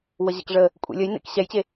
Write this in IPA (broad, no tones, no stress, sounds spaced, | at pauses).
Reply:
w ə ʑ ɛ̰ k ʐ ə | kʷʼ ḛ lʲ ə j n ḛ k ɕ ɛ j t͡ɕ e